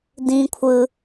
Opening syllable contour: high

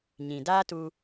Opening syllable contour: low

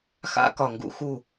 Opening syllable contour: high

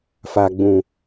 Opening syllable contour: low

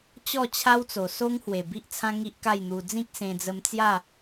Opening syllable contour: falling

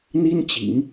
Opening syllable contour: high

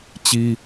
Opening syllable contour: high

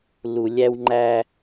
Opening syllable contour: low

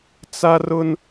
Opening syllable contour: high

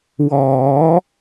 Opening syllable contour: rising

